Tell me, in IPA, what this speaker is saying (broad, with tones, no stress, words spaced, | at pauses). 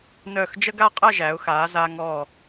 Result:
nœː˧˩xd͡ʒə˥ɡa˥˧ qʼə˥˧ʒæ˩˧ʊ̯xaː˩˧ zaː˧ŋɔː˧˩